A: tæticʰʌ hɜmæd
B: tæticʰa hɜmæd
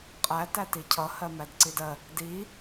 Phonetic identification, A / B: A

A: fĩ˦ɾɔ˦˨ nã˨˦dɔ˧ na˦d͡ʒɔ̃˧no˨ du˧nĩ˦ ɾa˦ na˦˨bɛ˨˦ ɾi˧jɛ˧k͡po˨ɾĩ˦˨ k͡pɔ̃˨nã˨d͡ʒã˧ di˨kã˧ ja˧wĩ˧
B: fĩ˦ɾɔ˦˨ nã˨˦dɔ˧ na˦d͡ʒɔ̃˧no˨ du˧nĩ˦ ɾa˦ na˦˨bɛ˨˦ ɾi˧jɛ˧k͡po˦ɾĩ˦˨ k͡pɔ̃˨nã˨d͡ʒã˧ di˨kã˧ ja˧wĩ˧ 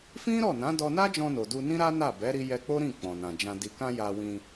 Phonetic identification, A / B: B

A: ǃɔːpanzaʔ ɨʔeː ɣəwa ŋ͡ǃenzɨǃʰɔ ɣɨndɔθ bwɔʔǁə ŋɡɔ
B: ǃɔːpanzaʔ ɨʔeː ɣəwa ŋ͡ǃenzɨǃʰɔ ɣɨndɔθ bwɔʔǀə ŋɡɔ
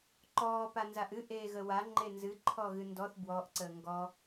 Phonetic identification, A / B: B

